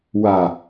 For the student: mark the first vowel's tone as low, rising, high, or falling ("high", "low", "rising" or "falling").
low